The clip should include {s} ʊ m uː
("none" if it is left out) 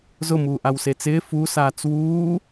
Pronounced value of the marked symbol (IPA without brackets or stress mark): z